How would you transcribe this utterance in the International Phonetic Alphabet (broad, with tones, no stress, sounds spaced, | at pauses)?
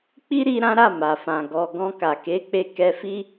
k͡p i˦ ɾ i˧ ɾ ã˦ ɾ a˦˨ m a˨ f ã˨ ɡ ɔ˨ ɡ ɔ̃˧ k a˨ k e˨˦ k͡p e˧ k ɛ˧ f i˦